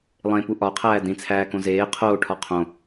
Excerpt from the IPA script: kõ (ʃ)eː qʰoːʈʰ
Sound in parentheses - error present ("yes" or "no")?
yes